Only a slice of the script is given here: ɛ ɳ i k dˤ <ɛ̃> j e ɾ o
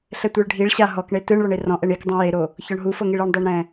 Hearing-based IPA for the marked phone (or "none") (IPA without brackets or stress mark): ẽ